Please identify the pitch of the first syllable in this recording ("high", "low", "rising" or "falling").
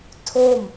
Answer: falling